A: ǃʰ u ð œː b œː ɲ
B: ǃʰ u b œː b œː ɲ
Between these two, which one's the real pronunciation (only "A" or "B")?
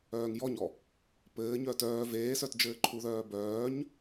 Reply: A